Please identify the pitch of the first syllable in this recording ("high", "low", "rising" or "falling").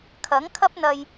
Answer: rising